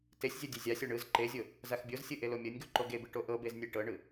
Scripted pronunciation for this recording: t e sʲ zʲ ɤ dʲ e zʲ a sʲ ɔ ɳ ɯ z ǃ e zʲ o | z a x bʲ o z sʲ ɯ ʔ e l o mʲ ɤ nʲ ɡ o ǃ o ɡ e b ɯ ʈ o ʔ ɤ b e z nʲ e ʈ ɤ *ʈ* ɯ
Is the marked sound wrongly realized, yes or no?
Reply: yes